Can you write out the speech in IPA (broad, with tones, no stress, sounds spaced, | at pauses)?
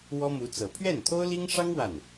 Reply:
w ɔ˥ m u˧˥ t͡s ɤ˨˩ pʰ ɥ ɛ˥˩ n t̪ʰ o˥ ʊ̯ l i˥ ŋ ʂ ɑ˥ ŋ w a˥˩ n